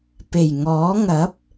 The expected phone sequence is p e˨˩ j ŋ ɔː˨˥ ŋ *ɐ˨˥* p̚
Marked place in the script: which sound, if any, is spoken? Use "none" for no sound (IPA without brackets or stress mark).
ɐ˨˥